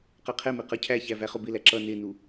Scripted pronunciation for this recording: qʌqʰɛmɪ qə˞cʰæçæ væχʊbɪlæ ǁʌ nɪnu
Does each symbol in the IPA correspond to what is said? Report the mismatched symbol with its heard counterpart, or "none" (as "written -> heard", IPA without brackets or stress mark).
none